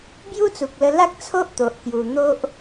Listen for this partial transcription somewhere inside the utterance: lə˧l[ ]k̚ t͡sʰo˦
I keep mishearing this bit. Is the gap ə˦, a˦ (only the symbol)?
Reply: a˦